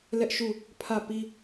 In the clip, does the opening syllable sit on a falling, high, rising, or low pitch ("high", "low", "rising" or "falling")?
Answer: high